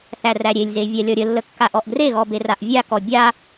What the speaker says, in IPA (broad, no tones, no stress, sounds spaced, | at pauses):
θ æ r æ ɾʲ e lʲ z e vʲ a lʲ ɔ ɾʲ ə lː ə kː a ʔ ɔ ʔ ɡ r e ɣ ɔ b e r a ʔ vʲ a k ɔ bʲ a